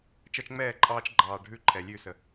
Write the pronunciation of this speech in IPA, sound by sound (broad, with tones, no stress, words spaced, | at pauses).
t͡ʃʌ˧t͡ʃŋ͡mɛː˦˨ǃʼɑː˧t͡ʃɡ͡ǃɑː˨ ɖʱʉ˦˨ǃʰɛ˨lʲʉ˦˨sə˨